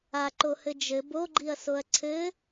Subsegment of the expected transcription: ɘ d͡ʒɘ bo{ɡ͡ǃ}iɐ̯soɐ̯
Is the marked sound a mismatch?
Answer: no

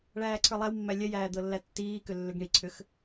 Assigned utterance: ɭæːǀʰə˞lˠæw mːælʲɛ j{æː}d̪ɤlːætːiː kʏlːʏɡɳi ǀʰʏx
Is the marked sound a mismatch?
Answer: no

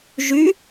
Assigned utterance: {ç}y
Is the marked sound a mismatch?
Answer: yes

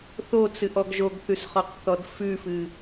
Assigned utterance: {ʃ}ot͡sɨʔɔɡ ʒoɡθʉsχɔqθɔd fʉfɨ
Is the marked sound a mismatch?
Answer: yes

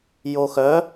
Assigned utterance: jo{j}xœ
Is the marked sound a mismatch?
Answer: yes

